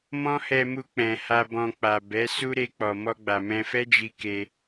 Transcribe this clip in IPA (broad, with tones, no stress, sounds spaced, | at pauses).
m ɔ̃˦ h ɛ˧ m u˧ k͡p ɛ̃˨ h a˧ b ɔ̃˧ k͡p a˨ b ɛ˨˦ s u˦ ɾ e˧ k͡p ɔ˨ m ɔ˧ ɡ͡b a˨ m ɛ̃˧ f ɛ˦ d͡ʒ i˧ k e˧